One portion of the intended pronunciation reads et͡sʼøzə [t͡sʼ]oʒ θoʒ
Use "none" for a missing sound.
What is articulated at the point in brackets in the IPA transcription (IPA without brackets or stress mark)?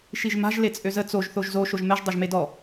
t͡s